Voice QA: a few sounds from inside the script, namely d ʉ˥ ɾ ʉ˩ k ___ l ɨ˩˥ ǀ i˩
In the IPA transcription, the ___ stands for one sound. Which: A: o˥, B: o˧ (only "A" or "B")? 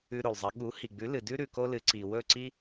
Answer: A